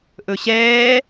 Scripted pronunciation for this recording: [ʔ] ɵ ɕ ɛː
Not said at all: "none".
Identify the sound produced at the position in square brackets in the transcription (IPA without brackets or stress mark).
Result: ʔ